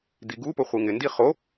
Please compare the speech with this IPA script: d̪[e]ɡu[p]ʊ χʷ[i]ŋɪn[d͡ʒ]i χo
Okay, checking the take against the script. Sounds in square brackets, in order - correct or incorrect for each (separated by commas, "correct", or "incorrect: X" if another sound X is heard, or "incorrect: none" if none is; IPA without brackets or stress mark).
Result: incorrect: i, correct, correct, incorrect: d